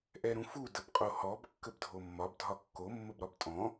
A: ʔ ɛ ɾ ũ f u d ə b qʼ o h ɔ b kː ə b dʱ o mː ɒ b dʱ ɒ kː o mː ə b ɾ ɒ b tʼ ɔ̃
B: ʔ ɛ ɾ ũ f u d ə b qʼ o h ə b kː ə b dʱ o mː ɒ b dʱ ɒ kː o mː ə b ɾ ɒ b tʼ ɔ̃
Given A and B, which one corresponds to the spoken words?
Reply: A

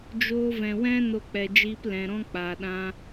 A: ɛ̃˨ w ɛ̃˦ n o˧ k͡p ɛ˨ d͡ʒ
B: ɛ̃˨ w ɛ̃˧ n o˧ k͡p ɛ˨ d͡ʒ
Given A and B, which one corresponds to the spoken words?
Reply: A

